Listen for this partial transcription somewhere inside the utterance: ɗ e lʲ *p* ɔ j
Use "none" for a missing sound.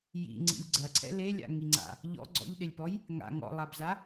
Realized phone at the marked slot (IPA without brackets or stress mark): p